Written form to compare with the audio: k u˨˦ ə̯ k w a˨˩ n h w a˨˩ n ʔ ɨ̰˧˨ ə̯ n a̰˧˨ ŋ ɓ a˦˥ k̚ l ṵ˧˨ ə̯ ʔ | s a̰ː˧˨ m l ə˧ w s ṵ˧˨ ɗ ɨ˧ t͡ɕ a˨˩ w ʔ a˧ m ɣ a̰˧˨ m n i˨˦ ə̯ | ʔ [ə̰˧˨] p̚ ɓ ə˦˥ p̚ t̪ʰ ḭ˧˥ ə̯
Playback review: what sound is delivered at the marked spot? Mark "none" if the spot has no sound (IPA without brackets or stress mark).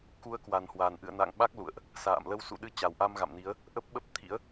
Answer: ə˦˥